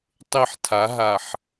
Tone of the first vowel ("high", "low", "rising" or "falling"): falling